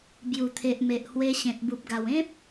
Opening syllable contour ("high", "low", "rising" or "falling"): low